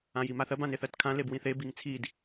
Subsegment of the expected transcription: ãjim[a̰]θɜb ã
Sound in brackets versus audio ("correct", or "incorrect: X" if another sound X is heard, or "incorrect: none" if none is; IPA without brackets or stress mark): incorrect: a